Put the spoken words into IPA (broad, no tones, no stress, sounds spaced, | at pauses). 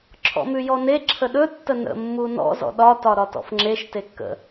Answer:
ǁʰ ɔ̰ m ʉ j ɔ n e ǁʰ ə ɗ ɵ tː ə n ə̰ mː u n ɔ̰ z ɔ̰ ɗ ɒ t ɒ ɾ ɒ t ɔ̰ f ŋ͡ǁ e ʃ t e kː ə̰